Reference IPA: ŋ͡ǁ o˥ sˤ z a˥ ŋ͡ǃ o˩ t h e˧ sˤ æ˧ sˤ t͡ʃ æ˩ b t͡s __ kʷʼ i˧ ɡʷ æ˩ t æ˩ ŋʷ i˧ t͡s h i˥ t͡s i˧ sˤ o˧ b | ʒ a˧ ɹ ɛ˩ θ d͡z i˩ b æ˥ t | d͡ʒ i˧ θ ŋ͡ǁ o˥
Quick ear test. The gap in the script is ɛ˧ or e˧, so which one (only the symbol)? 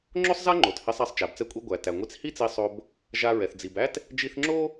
ɛ˧